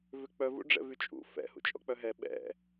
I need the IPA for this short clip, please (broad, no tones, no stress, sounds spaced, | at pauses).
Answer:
v ʏ k͡p œ v ṵ ɖ͡ʐ ɛ̰ v y t͡ʃʼ ṵ f ɛ̰ h ṵ t͡ʃʼ ɔ̰ k͡p œ ɦ ɛ ɓ ɛ̰